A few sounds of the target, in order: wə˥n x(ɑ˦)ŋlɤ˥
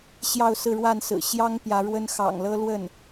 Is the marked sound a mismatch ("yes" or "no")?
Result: yes